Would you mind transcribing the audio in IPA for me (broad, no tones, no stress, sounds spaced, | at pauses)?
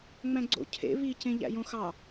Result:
ŋ͡m æ̃ ɡ͡ǀ o̰ cʰ ḛ β i c ẽ ʎ æ̰ j õ x ɑ